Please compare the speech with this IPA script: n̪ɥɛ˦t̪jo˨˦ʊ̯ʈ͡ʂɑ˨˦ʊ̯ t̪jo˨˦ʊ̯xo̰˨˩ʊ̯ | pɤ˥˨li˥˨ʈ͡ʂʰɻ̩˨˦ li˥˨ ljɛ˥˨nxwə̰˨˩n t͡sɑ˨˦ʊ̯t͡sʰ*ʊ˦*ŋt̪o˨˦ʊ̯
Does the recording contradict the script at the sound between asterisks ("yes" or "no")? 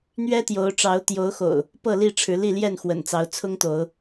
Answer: no